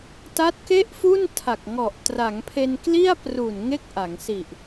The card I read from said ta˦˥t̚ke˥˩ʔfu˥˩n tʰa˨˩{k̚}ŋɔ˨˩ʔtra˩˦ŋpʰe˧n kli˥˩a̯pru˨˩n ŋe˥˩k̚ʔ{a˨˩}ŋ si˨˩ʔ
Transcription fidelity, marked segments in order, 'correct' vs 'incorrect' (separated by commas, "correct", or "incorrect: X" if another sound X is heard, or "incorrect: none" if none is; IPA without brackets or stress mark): correct, incorrect: a˩˦